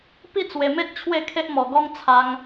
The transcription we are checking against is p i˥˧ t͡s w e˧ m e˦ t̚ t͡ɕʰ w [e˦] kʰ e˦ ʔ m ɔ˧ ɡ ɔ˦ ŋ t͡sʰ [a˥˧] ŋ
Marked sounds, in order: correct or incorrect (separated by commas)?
incorrect, incorrect